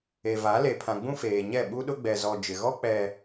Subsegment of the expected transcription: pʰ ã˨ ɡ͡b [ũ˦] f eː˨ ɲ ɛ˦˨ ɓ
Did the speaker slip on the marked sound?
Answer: no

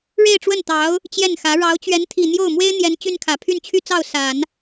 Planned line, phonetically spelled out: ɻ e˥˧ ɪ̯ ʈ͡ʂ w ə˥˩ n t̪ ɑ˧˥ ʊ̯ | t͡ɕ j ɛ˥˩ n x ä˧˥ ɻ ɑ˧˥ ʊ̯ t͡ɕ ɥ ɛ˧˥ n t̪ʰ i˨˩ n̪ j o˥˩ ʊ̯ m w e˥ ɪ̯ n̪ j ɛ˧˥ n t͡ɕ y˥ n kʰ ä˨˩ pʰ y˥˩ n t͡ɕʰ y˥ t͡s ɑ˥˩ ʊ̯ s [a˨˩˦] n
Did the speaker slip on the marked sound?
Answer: no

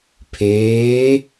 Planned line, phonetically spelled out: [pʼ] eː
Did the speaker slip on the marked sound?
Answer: yes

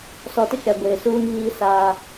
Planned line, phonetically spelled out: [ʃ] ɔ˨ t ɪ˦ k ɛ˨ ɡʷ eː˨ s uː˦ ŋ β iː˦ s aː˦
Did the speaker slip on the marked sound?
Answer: yes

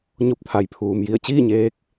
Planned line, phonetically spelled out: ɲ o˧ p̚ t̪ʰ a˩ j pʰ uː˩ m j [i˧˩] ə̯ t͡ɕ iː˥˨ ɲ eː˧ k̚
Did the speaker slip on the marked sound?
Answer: no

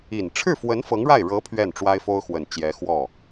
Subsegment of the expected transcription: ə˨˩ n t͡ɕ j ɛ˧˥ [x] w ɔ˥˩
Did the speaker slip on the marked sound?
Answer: no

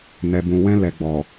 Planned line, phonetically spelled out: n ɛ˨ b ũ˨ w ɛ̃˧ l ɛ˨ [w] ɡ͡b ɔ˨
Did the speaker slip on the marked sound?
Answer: yes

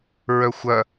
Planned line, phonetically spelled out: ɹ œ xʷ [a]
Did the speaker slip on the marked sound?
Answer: yes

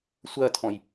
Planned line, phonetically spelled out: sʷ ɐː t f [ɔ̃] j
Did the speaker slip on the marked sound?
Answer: no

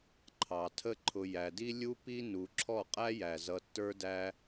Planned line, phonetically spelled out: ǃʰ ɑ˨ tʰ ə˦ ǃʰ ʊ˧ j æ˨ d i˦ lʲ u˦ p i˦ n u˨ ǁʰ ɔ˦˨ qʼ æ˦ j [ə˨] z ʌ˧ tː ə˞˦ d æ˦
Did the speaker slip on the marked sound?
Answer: yes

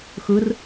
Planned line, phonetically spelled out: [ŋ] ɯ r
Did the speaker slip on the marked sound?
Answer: yes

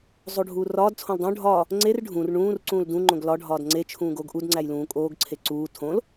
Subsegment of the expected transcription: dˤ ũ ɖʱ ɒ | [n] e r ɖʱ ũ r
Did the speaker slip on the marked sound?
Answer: yes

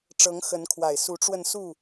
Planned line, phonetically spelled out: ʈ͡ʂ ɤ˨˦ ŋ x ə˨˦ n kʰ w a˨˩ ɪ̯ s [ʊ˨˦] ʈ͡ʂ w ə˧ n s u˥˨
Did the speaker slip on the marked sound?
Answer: yes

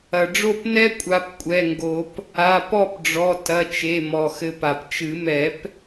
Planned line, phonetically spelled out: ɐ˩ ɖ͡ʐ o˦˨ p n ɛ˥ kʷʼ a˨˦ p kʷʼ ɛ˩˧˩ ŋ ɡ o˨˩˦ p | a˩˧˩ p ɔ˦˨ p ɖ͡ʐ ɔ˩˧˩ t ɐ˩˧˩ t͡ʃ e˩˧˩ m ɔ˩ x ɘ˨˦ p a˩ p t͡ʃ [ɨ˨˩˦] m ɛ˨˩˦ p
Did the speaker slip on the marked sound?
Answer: no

